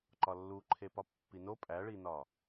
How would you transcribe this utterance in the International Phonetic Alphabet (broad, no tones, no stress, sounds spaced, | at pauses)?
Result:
ǃ ɒ lː u ǃʰ e p ɒ pː i n o pʼ æ ɭ i n ɒ